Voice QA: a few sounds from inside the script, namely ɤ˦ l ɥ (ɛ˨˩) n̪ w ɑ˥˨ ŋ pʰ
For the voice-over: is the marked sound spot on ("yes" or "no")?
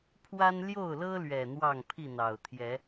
yes